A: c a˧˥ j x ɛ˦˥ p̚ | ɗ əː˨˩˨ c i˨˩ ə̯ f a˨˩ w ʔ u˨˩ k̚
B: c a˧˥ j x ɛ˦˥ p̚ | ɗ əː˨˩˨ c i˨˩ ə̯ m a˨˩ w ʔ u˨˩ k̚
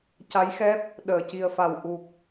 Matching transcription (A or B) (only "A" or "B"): A